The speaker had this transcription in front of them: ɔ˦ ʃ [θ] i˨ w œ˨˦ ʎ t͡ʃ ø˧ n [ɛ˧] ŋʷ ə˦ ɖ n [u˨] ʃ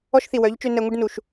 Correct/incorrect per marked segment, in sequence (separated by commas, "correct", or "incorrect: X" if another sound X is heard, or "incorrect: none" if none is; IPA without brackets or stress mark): correct, correct, correct